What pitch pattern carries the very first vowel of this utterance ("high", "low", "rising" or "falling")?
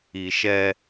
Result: low